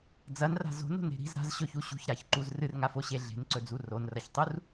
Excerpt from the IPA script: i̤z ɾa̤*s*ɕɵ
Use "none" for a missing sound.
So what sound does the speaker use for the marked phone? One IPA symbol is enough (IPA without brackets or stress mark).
z